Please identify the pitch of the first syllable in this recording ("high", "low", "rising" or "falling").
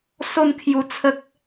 falling